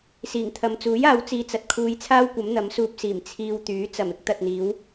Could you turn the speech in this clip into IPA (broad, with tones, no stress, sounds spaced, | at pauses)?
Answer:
s iː˨˩ ŋ t̪ʰ ɐ˨ m t͡s uː˨˥ j aː˨˧ w t͡s iː˧ t͡s ɐ˨ t̚ kʰ uː˧ j t͡sʰ aː˥ w kʷ ɐ˨˥ m n̪ ɐ˨˥ m s uː˧ p̚ s iː˨˩ m t͡sʰ iː˧ w t̪ yː˨˥ t͡s ɐ˨˩ m ɪ˨˥ k̚ t̪ ɐ˨ t̚ n̪ iː˨˧ w